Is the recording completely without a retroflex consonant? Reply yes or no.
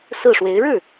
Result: no